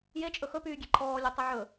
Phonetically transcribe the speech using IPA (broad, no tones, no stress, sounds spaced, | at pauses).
j e t͡ʃʼ ɵ x ɵ p yː ɡʲ e ǃʰ ɔː lʲ ɵ tˤ i ʕ ɵ